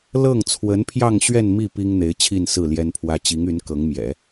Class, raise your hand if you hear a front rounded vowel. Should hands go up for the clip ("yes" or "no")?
yes